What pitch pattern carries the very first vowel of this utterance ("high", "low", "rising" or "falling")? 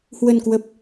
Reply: low